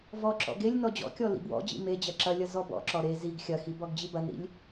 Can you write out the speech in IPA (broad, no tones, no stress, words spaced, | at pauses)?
vɔǁɔ̰ ɡelʲ nɔd͡ʑɔ̰kʲɔ lḭbwɔ̰d͡ʑḭ med͡ʑɐ ǁɐlʲɐ zɔbɔ̰ǁɔ ɾe ziɡ xʲɐxi bɔɡd͡ʑibɐnɾḭlʲ